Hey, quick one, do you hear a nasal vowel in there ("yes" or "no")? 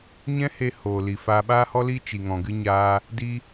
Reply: yes